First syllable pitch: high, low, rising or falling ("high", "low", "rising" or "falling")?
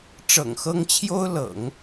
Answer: low